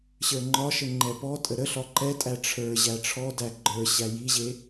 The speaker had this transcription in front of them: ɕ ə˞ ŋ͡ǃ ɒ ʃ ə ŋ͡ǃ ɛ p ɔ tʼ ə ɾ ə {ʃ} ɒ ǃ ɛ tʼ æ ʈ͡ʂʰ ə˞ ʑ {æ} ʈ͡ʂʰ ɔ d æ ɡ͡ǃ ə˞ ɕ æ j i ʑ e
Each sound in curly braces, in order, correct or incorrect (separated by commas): incorrect, correct